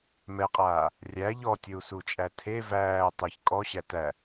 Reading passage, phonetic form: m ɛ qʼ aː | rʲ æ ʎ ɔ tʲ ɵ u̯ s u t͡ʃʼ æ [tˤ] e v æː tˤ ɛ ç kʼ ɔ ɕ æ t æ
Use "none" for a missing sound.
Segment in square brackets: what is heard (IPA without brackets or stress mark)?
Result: tʰ